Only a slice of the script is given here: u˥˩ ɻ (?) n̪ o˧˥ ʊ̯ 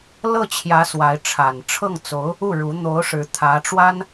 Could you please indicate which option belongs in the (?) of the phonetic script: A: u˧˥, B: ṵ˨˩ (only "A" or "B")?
A